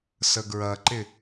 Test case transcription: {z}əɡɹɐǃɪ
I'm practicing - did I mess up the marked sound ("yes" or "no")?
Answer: yes